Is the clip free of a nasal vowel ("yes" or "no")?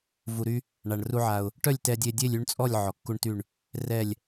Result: yes